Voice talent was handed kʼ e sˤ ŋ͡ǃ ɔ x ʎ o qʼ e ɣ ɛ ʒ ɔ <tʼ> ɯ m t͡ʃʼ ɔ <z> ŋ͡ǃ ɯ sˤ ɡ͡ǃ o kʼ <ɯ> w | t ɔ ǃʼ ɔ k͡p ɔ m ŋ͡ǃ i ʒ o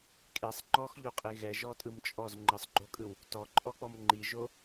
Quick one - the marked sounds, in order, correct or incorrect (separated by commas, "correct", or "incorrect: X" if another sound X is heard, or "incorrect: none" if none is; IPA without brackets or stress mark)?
correct, correct, correct